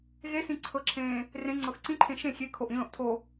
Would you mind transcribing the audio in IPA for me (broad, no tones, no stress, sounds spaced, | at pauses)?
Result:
ɣ e s ĩ ǀʰ ɤ ǁʰ ẽː | r ẽ ŋ͡ǀ ɤ x ǀ ĩ ǃʰ ẽ ʃ ẽ xʲ e kʰ o ʔ ĩ l õ ʔ tʰ o